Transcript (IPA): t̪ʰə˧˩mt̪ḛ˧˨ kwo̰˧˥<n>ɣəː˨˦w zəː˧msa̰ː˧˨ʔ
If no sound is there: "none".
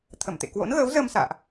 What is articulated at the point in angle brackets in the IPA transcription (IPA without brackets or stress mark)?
n